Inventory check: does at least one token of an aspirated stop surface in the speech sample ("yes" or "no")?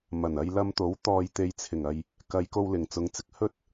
yes